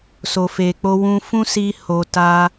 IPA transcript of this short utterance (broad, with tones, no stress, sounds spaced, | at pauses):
s o˨ f e˨ k͡p o˧ w ũ˧ f ũ˦ s i˧ h o˨ t a˧